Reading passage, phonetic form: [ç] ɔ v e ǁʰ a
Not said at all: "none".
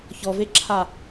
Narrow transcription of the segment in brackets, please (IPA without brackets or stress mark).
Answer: ç